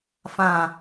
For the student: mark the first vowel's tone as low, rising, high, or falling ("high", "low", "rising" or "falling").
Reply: low